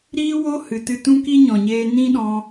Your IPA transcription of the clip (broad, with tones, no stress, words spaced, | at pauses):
ɾiː˦wo˦ hɨ˨tɨ˧ tũ˦ki˦ɲɔ̃˨ɲeː˧ nĩ˦ɗɔ̃˧